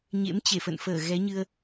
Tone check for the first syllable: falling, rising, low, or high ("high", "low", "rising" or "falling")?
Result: rising